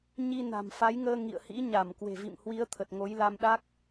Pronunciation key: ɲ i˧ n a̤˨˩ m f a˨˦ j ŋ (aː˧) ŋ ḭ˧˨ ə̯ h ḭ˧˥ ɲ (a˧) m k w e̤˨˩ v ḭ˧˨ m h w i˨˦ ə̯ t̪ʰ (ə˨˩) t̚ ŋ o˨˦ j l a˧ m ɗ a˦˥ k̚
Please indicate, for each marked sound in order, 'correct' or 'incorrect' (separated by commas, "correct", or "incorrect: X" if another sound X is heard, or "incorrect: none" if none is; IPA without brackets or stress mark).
incorrect: əː˧, incorrect: a˧˩, correct